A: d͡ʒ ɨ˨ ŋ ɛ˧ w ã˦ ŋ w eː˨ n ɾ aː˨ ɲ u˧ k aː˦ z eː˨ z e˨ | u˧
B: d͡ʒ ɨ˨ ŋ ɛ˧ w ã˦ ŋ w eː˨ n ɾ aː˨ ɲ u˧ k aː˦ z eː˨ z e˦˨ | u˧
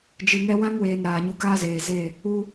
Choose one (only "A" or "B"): B